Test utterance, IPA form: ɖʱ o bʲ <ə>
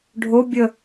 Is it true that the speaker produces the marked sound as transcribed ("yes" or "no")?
yes